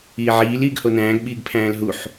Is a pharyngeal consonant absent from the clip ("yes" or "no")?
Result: no